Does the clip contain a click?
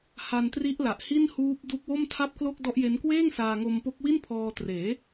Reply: no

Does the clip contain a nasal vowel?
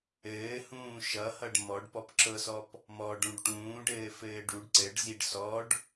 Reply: yes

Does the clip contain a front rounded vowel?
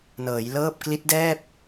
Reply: no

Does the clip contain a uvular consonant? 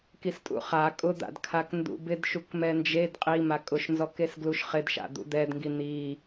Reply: yes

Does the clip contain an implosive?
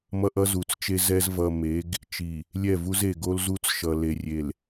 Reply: no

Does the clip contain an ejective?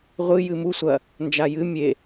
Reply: no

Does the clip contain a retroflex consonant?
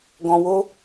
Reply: no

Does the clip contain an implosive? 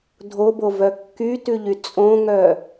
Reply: no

